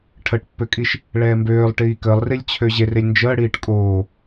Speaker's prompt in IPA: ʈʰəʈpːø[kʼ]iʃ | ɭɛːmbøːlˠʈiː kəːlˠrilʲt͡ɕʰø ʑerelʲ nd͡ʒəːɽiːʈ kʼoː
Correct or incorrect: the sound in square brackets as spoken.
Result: correct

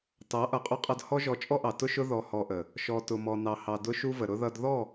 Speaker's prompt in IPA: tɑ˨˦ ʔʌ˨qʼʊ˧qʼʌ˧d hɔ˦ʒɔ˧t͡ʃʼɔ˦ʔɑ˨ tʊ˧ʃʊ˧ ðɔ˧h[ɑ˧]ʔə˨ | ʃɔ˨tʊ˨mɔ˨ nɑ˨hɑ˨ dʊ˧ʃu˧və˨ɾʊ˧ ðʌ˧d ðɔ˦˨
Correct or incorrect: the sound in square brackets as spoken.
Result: incorrect: ɔ˧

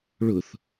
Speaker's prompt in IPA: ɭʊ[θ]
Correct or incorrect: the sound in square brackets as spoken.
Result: correct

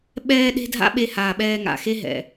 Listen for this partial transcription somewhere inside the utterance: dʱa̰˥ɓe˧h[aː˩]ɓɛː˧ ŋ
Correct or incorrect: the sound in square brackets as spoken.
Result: correct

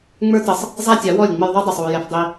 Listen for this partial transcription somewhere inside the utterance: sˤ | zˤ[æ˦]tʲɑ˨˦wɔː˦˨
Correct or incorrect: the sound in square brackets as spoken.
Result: correct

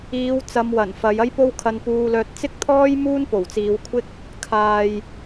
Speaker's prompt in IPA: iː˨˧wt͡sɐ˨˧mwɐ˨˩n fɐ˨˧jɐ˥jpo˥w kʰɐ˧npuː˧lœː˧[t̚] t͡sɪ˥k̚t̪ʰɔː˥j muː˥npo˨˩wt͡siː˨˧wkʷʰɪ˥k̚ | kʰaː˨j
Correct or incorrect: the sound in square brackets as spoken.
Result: correct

